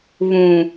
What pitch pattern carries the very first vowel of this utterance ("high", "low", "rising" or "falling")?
low